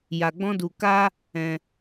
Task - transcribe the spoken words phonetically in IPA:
ja˧ɡ͡bɔ̃˦ du˧ka˦ | ɛ̃˧

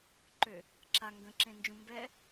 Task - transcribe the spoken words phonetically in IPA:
ǃø | ǁa ŋɡə̃ǁẽnd͡ʒũ mbɛ

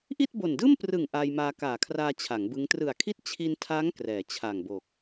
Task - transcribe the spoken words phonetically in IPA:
ʔi˥˩t̚bo˨˩ndɯː˥˩mprɯ˨˩ŋ ʔa˧jmaː˧kaː˨˩kʰraː˧ t͡ɕʰa˩˦ŋbɯ˦˥ŋ trɯ˨˩a̯kʰi˥˩t̚ t͡ɕʰi˧ntʰa˦˥ŋ krɛː˩˦t͡ɕʰa˨˩ŋbo˨˩k̚

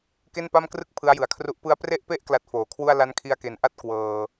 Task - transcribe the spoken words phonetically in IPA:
ke˥˩npa˥˩mkrɯ˥˩k̚ pʰɯ˦˥a̯jɯ˨˩a̯kʰru˦˥ʔ pɯ˦˥a̯pre˥˩ʔpe˥˩ʔ kla˦˥t̚foː˨˩kʰwu˥˩a̯ la˦˥nkʰi˧a̯ke˩˦nʔa˥˩t̚ kwɤː˧

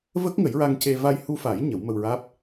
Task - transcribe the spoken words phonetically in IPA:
və˦˥k̚ŋə˨˩˦jɹa˧ŋce˧ va˧jhu˧fa˨˩˦j ɲə˨˩˦wmə˧wɹaː˦˥p̚

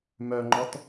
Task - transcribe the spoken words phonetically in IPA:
mœŋ͡ǃɔt

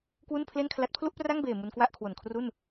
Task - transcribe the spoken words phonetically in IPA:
kwu˥˩npʰle˥˩nkʰla˦˥t̚ pʰlu˥˩ʔpra˥˩ŋbeː˨˩ mu˧nkwa˥˩ʔkʰwo˨˩nkʰru˥˩n

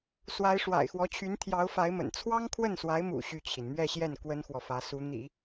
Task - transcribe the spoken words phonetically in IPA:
swa˧˥ɪ̯ʂwa̰˨˩ɪ̯xwɔ˧˥ t͡ɕʰy˧˥nt̪ʰjɑ˧˥ʊ̯fa˧˥ɪ̯mə̰˨˩n t͡sʰwɑ˥ŋkʰwə˥˩nswa˧˥ɪ̯mṵ˨˩ ɕy˥˩t͡ɕʰi˩n mɥɛ˥˧ɕjɛ˥˩n kwə˥nxwɔ˨fä˧˥ su˧˥n̪ḭ˨˩˦

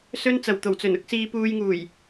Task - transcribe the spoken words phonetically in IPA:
sɵ˥n t͡sɐ˨˩wt̪o˨˩wt͡sɵ˨˩nʊ˨˥k̚ siː˧puː˧jŋuː˨˩j

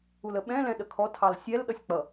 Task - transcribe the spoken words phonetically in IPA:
uləɓɛ̃ lɛ̃ɗəkʰɔtʰɑl sʲɛlɗʌsʲ k͡pʌ

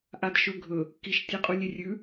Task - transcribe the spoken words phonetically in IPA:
ʔadʃɵ ɡʱɵ | kiʃ tʲeqʼulʲerʲʉ

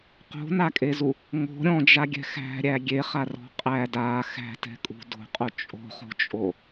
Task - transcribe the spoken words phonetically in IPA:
qo̤nakʼezu | ŋo̤ ɾʲɔ̃d͡ʒaɡʲɛ̤ xæ̤ɾʲæ ɡʲeχarɔ̤ qʼæ da xæ̤tɛ̤kʼṳ do̤qʼo t͡ʃʼo̤χo̤t͡ʃʼo

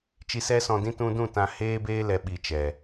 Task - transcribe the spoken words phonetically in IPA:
t͡ʃi˧sɛ˦sɔ̃˧dĩ˦ tũ˧dũ˦˨ tã˧heː˦beː˦ lɛ˧ɓi˧t͡ʃɛ˨

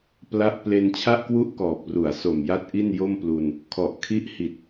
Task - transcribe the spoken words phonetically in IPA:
pla˥˩ʔ ple˧nt͡ɕʰa˥˩ʔkwu˥˩ʔkɔː˨˩p̚ ru˩˦a̯so˨˩mja˦˥t̚ ʔi˥˩njo˥˩mplu˧n | kʰɔ˨˩ʔkʰi˦˥ʔhi˨˩t̚

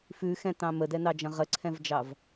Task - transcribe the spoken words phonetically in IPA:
fʉxɛ̃tɑ̃ mədɛnɑd͡ʒɐ̃ ʁəǀʰɛ̃vd͡ʒɑv

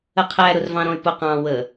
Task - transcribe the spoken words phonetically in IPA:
əqʰæ ɾʊrvɑ̃ɾɔ̃y̯pʊ qɑ̃ wə

